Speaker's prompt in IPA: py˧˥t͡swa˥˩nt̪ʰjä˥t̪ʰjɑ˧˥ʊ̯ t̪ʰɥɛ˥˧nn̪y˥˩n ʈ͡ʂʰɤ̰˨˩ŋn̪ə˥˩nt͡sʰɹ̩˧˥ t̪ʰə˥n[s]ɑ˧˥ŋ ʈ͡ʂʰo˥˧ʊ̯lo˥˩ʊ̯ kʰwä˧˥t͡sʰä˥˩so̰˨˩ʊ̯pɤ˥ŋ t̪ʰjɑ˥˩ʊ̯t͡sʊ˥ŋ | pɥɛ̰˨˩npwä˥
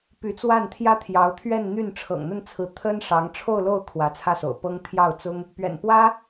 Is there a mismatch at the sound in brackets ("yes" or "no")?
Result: yes